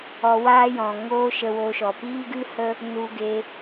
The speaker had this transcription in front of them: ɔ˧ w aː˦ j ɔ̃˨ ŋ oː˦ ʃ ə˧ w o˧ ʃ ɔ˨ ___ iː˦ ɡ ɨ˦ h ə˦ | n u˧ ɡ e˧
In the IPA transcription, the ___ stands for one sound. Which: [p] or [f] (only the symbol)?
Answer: p